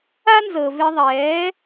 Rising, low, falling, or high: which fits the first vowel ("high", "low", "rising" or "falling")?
high